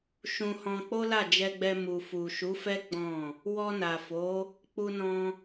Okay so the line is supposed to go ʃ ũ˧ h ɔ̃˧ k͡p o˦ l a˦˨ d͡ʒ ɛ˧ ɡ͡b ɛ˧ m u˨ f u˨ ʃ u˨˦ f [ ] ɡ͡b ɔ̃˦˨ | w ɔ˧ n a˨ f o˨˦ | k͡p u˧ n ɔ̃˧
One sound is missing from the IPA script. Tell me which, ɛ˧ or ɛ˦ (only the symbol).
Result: ɛ˦